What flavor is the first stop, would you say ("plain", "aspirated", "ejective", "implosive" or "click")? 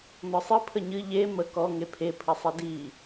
aspirated